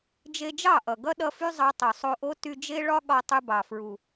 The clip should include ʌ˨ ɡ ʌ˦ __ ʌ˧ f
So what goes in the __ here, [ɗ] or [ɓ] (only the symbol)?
ɗ